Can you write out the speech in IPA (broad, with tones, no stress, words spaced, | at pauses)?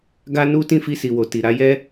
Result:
ɡa˦nu˦ tĩ˦˨fi˧si˨wo˨ ti˨ɾa˨˦ jɛ˦